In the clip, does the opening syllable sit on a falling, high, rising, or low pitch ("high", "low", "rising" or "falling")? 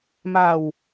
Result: low